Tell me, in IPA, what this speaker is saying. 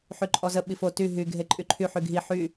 ħyǃʼɔzə ɓifo ty ɦy ɡʱeǃʼyǃʰy ħyɡʱi ħy

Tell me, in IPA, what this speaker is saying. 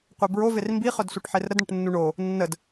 qʷebɹo vermbi χœdsʷœʈħerɾəd ɳəʈnːuɳo | nːəd

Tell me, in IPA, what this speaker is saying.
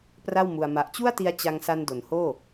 pra˥˩wmu˧a̯ ma˨˩ʔt͡ɕu˥˩a̯ti˧a̯ t͡ɕa˧ŋsa˧n do˩˦nhoː˥˩

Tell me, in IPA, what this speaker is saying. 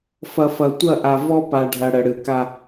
fɐ˨fɐ˨ tʷɐ˦˨ ʔa˨ vɔ˦pa˨ɖʱɐ˨ ɽə˨ɽɨ˨ka˦

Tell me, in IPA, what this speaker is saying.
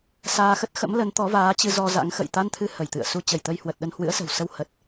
saː˧xə˦˥t̚ xə̰˧˥mlə˨˦n t̪ɔ˨˦vaː˨˦t͡ɕɨ˧ zɔ˧za̰˧˥ŋxə̰˧˨j t̪a˧nt̪ʰɨ˨˦ hə˧˩jt̪ɨ̰˧˨ə̯ su˧ t͡ɕə˧˩jt̪ə˧jhwə˨˩t̚ ɗə˧nhwɨ̰˧˥ə̯sə̤˨˩w sə˧w hə˨˩t̚

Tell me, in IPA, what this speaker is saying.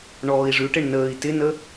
ɳɔːi̯ʐʉʈɪɳ nəːi̯ tɪnə

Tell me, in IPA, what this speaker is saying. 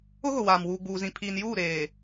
ʊ˦ɣʊ˨waː˨m wuː˨ɡ͡buː˨zĩ˨ pʰiː˨njuː˦˨ɾeː˨

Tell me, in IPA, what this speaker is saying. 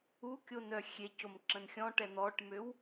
ukʲon œxʲecom ǁə̃nxʲɔ̃ʈɛ n̪ɔʈmøw

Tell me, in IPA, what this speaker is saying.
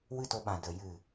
wɨ˦to˧ɓã˨də˨ jɨ˨

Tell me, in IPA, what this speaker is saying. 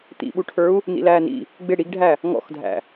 t̪ḭɓuʈʰə˞u̯ | nḭlæːnḭ | ɡ͡bɪ ɽiɡɖʱæ | ŋɔ̰xdʱæ̰

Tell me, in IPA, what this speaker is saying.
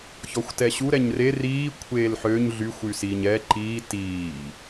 çɔxʷtɛɕu ɾɛɲre riː kʷʰeːlħøɲ ɮyxʷ ysiːɲɛ ǃiː tiː

